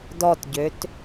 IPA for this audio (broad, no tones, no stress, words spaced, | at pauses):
dɔtɟøt